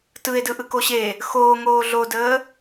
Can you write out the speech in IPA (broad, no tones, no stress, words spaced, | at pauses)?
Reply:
tɯe̯ dɯʔɯkoɕe | xoːŋoː ɮodəː